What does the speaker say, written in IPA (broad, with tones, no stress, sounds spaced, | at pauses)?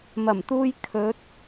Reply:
m ɐ˨˩ m t̪ uː˧ j kʰ ɵ˨˥ t̚